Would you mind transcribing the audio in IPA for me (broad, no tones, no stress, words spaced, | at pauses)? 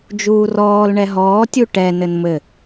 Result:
d͡ʒuːrɔːl ɳɛɦɔː tʲuʈɛ nɘnmɘ